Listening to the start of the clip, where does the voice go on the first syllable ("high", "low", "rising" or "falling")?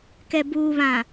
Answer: low